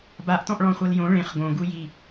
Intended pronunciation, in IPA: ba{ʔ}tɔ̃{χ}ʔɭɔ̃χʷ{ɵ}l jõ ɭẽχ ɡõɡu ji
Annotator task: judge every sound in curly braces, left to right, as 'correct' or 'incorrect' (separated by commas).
correct, incorrect, incorrect